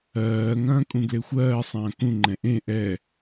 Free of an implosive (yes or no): yes